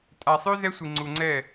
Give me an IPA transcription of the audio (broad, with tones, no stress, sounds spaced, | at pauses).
tʼ a˨ sˤ ʉ˦ z ɛ˦ sʷ i˨ ŋ͡ǀ u˨ ŋ͡ǀ ɛ˦˨